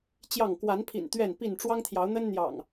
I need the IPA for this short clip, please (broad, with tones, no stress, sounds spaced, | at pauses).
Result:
t͡ɕ j ɑ˥˨ ŋ k w a˨˦ n pʰ ḭ˨˩ n t̪ ɥ ɛ˥˨ n p i˥˨ n ʈ͡ʂ w ɑ˦ ŋ t̪ʰ j ɑ˨˦ ʊ̯ n̪ ə˦ n n̪ j ɑ̰˨˩ ŋ